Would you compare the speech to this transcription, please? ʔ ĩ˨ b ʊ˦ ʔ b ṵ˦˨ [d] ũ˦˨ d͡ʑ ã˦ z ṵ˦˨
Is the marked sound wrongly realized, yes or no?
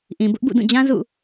no